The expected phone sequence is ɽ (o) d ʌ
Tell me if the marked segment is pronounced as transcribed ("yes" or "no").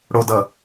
yes